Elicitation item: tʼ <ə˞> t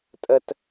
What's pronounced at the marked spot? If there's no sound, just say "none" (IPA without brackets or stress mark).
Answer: ə